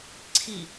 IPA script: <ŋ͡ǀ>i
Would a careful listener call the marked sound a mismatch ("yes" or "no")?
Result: yes